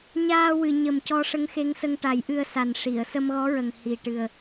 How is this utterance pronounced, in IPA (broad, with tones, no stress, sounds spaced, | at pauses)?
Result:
ɲ aː˧ w ɨ˨˩˨ ɲ ə˨˩ m c ɔ˧ ʂ ə˧˥ ŋ x e˧˥ ŋ s ə˧ ŋ ʈ a˨˩˦ j ʔ ɨ˧ ə̯ s a˨˩ n ʂ i˨˩˨ ə̯ s ə˧ m ɣ ɔ˧˥ ɹ ə˨˩ ŋ h i˨˩ ʈ ɨ˨˩ ə̯